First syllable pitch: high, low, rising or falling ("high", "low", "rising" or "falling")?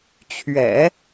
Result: low